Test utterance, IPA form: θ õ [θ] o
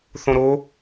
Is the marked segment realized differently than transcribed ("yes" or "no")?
yes